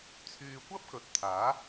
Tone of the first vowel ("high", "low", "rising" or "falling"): low